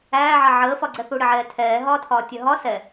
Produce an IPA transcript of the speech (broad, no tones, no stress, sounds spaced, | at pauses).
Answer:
æː ʕ ɑ ʕ əː f ɒ ɡ͡ǀ ɛ θ u ɽ ɪ ʕ ɛː tʰ ɛː ɦ ɒː tʰ ɒː tʲ ɜ ɦ ɒ s ɛ